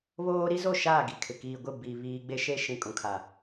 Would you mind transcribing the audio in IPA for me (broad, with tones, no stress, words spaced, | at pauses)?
βoː˦ ɾi˦zo˦˨ʃaː˦˨ɡi˨ kʰɪ˨ kiː˨ɡʷɪ˦˨ bi˨ βiː˦ ɡ͡be˦ʃe˦ ʃĩ˨kʼũ˨kʰa˨